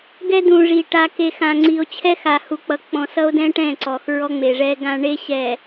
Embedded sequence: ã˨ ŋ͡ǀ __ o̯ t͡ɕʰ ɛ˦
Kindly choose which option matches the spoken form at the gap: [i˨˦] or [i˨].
i˨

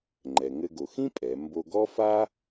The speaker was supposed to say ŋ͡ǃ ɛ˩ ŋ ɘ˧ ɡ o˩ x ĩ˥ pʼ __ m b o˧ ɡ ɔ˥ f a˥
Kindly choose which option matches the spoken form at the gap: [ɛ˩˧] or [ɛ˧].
ɛ˩˧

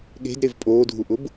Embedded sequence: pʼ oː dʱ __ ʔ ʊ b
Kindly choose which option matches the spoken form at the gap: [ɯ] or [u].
u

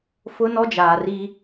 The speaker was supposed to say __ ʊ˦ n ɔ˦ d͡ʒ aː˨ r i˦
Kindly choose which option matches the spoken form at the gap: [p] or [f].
f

